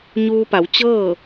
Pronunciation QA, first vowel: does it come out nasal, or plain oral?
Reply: oral